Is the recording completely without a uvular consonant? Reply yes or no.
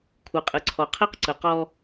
no